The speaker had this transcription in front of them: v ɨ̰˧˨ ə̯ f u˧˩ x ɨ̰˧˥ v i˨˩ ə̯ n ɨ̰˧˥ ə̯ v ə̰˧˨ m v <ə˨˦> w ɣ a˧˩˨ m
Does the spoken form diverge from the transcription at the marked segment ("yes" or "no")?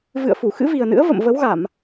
no